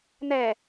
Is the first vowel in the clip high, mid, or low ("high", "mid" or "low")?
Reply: mid